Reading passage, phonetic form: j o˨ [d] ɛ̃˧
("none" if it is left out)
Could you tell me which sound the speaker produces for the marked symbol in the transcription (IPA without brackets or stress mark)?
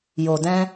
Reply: d